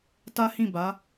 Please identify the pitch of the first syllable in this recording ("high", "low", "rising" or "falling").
high